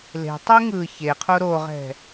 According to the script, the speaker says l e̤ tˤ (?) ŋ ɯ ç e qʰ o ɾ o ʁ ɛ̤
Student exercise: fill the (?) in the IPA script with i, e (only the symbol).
i